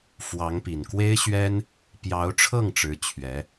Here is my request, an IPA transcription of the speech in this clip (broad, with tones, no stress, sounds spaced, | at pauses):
f w ɑ˧˥ ŋ p i˨˩ n k w e˥ ɪ̯ ɕ ɥ ɛ˥ n | p j ɑ˧˥ ʊ̯ ʈ͡ʂʰ ɤ˥˩ ŋ ʈ͡ʂ ɻ̩˧˥ t͡ɕʰ ɥ ɛ˧˥